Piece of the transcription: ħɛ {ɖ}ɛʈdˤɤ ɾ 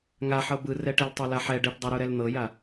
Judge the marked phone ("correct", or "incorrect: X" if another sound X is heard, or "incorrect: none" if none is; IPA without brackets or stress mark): correct